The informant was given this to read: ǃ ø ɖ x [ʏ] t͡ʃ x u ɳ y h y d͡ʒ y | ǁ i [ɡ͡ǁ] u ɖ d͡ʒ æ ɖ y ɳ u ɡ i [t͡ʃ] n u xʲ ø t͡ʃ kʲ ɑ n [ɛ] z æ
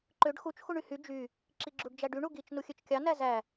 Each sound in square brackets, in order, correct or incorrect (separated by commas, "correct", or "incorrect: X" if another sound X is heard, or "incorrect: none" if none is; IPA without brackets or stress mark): incorrect: u, correct, correct, incorrect: æ